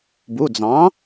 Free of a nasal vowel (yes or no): no